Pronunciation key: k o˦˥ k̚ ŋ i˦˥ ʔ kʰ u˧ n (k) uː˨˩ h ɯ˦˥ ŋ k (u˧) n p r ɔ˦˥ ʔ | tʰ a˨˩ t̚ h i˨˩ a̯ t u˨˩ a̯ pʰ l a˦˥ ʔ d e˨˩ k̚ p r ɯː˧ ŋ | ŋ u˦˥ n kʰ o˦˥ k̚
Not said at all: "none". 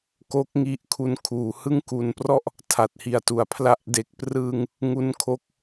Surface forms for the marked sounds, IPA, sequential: kʰ, u˨˩

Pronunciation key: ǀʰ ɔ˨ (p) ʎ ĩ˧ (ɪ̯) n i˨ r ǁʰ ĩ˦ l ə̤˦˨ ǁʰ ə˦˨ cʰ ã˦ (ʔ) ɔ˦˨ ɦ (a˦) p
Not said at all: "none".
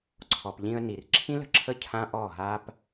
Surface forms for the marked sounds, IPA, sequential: p, ə̯, ʔ, a˦

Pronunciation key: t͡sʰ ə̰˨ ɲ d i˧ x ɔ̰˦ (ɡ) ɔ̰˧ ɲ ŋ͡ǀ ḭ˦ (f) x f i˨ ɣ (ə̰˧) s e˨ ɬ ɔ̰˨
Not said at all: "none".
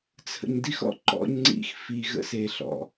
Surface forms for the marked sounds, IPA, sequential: ǃ, none, ə̰˧

